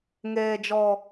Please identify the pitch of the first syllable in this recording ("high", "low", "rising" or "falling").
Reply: low